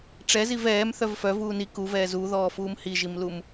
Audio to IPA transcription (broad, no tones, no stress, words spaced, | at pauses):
ʈ͡ʂɛziv ɛːm θœvfœv uːni ku vɛːzuðɔː fuːmhiʒimlum